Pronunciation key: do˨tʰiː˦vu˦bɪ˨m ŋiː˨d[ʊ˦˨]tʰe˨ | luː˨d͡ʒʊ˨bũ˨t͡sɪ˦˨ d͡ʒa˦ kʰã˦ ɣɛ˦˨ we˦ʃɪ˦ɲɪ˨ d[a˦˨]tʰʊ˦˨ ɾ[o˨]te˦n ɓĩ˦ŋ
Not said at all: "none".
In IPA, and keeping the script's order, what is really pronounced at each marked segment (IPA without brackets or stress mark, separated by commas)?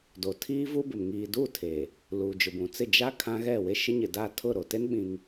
u˦˨, a˦˨, o˨